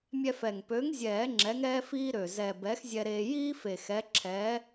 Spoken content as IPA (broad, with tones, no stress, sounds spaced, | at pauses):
mʲ ɛ˧ f ɛ˨˩ ŋ p ø˨˥ ŋ zʲ ɛː˨˩˦ ŋ͡ǁ ɛ˨˥ ŋ ɛː˥ f iː˥ ɾ ø˨˩ z ɛ˨˩ b ɛ˨˥ x zʲ ɛ˧ ɾ eː˧ j iː˥ f e˨˩ x ɛ˨˥ ǁʰ ɛː˨˥